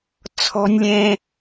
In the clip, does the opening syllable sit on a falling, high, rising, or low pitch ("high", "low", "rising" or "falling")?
high